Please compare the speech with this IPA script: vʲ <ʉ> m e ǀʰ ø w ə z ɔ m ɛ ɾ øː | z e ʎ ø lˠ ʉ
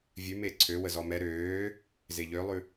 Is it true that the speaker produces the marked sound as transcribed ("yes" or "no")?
yes